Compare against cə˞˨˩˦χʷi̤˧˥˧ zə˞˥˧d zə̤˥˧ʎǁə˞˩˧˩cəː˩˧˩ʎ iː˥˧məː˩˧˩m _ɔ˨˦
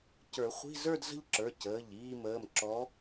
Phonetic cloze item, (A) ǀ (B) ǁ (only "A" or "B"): B